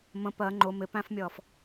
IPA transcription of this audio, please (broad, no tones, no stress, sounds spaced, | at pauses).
m ə̃ p ɜ ŋ͡ǃ ʊ m ɪ p æ̃ f mʲ ʌː f